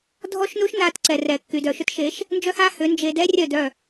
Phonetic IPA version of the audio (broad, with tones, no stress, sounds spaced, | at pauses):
dʱ ɔ˦ ʃ n u˦ ʃ n a˧ t ǀ ɛ˨ r ɛ˨ kː y˨ d œ˨ ʃ ʏ˦ t ʃ e˨˦ ʃ | n d͡ʒ œ˦ h a˦ h ʏ˨˦ n d͡ʒ e˧ d ɛ˦ rʲ œ˦˨ d œ˦˨